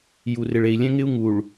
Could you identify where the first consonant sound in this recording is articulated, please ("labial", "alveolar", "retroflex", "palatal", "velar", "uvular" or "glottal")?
palatal